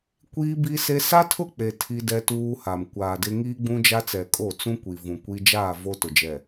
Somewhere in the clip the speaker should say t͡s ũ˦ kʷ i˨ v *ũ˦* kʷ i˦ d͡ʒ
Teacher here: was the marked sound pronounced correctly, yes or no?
no